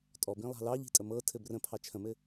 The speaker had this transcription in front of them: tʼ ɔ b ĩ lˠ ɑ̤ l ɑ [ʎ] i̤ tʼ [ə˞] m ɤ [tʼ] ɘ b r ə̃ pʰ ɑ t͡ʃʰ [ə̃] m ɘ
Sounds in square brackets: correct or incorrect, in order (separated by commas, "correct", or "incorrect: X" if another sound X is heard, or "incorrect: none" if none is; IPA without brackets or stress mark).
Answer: correct, incorrect: ə, incorrect: tʰ, correct